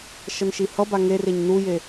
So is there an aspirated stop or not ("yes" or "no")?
no